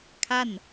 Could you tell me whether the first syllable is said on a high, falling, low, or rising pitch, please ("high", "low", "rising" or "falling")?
falling